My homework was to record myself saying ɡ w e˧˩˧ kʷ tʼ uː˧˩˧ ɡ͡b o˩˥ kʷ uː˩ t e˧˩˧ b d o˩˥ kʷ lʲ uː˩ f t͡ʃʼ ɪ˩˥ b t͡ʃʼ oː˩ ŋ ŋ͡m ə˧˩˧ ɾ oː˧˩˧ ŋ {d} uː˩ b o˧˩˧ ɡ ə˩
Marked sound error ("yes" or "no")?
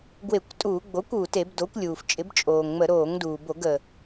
no